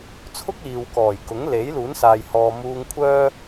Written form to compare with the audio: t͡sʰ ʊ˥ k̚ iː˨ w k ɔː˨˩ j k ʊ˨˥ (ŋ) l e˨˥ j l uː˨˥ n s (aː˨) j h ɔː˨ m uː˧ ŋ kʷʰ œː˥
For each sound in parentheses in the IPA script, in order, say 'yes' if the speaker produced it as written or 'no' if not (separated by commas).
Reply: yes, yes